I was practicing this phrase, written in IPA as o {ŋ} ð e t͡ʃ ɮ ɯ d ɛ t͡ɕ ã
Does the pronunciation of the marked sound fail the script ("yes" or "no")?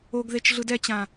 yes